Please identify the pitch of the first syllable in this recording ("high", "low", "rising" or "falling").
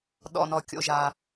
low